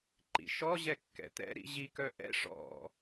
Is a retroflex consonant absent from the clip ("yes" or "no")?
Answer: no